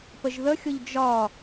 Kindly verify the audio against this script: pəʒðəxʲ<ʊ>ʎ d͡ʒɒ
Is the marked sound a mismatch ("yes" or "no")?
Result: no